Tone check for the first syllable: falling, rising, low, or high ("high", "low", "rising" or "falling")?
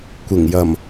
low